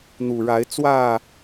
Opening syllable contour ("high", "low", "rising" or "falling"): low